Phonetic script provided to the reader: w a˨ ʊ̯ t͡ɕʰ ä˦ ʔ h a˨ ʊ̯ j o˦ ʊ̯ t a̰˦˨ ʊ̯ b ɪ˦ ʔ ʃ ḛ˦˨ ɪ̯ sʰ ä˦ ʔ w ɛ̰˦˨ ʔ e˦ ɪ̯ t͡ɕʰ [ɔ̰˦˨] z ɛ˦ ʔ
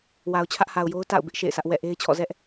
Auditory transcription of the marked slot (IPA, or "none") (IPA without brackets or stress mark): ɔ̰˦˨